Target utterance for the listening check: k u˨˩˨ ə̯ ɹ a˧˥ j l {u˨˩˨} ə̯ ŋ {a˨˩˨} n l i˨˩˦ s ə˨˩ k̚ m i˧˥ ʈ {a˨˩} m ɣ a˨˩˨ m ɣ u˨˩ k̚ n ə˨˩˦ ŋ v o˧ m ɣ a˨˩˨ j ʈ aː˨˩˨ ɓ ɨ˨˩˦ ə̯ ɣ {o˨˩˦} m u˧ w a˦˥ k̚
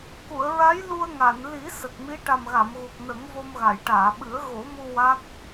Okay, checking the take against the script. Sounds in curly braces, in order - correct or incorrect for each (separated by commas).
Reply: incorrect, correct, correct, correct